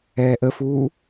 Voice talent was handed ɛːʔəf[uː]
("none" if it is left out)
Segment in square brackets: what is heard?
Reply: uː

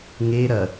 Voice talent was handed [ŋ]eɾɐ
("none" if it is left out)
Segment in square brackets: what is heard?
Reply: ŋ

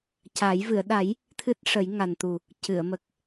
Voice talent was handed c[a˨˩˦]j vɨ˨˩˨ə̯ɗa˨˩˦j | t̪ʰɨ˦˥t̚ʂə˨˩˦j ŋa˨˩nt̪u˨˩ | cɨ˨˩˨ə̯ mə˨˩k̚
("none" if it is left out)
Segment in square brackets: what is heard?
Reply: a˨˩˦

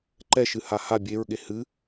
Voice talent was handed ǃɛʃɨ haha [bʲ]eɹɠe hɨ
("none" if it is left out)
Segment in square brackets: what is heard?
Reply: bʲ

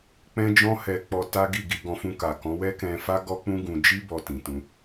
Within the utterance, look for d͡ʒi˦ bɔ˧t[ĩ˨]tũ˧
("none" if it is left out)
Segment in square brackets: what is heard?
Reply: ĩ˨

